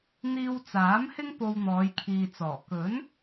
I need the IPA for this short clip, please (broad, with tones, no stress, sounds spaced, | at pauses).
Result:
n̪ iː˧ w t͡s aː˨˥ m h ɪ˥ ŋ p o˧ w n̪ ɔː˨˧ j kʰ iː˨ t͡s ɔː˨˩ k ɵ˨˥ n